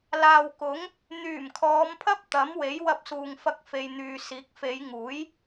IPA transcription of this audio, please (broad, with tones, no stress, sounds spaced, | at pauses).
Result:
l aː˨ w k ʊ˨˥ ŋ | n̪ yː˨˩ m kʰ ɔː˨˧ m pʰ ɐ˥ p̚ t̪ ɐ˨˥ m w e˨˥ j w ɐ˧ p̚ s uː˨ ŋ f ɐ˧ k̚ f e˨ j n̪ yː˨ s iː˨˥ k̚ f e˨˧ j ŋ uː˨˥ j